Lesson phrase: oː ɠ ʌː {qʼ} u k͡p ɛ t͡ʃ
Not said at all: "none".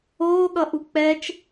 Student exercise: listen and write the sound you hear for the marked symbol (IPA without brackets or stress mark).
ʔ